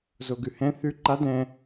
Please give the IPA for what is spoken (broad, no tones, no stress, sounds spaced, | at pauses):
z o ɡ ʉ h ɛ̃ θ ʉ ǃ a d ɛ̃